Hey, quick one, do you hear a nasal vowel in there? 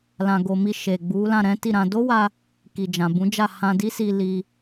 yes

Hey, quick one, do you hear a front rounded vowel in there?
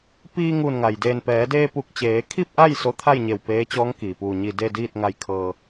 no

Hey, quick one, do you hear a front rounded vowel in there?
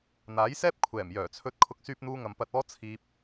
yes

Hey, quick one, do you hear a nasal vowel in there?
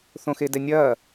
yes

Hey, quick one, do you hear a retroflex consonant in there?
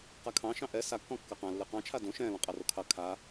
no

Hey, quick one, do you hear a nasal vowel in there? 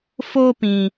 yes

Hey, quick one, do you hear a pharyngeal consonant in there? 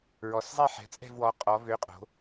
yes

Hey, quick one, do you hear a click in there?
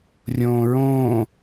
no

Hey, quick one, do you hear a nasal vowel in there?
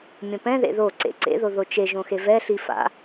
yes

